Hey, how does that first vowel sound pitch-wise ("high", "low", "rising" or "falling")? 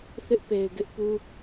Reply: high